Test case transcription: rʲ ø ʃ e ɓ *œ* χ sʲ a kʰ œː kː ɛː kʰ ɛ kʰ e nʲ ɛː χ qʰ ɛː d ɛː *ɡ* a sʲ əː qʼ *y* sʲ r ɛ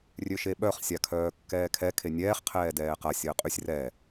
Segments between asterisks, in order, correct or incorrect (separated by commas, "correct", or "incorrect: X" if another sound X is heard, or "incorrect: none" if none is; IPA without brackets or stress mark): correct, incorrect: q, correct